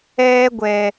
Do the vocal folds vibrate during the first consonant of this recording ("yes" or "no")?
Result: yes